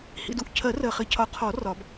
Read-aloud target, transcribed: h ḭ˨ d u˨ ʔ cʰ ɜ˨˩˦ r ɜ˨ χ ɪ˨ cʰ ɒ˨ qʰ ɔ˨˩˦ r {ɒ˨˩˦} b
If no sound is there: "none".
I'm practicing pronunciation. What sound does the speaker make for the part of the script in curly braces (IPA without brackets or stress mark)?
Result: ɒ˨˩˦